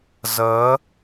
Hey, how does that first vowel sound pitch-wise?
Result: rising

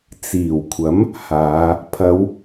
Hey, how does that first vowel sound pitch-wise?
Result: low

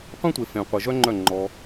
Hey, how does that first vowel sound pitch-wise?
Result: high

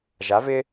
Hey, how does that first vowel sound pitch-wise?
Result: rising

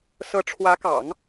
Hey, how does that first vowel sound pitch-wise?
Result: rising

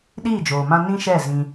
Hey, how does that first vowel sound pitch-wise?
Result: falling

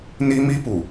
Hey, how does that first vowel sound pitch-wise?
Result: high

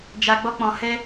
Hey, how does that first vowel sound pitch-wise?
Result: low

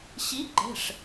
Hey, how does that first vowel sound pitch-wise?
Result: rising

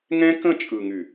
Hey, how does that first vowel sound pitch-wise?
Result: high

